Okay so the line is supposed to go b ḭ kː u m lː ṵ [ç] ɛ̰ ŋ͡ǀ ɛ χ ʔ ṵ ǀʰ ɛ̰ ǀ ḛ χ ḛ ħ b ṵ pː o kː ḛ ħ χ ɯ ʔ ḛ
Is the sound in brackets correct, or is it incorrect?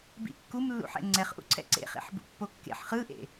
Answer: incorrect